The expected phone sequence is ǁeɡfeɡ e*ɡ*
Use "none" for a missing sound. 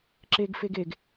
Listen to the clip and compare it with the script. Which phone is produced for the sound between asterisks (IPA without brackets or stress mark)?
ɡ